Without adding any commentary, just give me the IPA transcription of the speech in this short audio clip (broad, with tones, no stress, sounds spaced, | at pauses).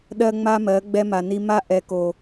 ɗ ɜ˦ ŋ͡m a˦ m ɜ˨˦ ɡ͡b ɛ˦ m a˨ n i˦ m a˦ ʔ ɛ˨ k o˨